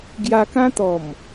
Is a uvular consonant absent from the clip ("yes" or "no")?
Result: yes